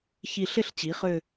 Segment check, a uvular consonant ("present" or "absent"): present